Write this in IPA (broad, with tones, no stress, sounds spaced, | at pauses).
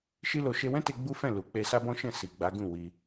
ʃ i˦ l o˧ ʃ e˧ w ɛ̃˦ t e˧ ɡ͡b u˦ f ɛ̃˦˨ l u˨ k͡p e˧ s a˦ b ɔ̃˦ ʃ ɛ̃˦˨ s i˨ ɡ͡b a˨˦ ɡ ũ˦˨ w i˧